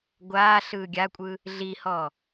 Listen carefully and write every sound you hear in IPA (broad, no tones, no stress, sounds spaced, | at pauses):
ɡʷ aː ɬ ɯː ɡʲ a kʷʼ ɯ | ɮ i h ɔ